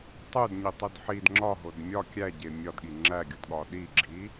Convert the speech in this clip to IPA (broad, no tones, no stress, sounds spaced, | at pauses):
tˤ u d ɲ i tˤ u d ħ i d ŋ͡ǁ ɒ ɦ o d mʲ ɒ kʲ æ ɟ e mʲ ɒ d ɠ i ŋ͡ǁ æ ɡʲ u d ɠ ɒ ɗ i ɡ͡ǁ i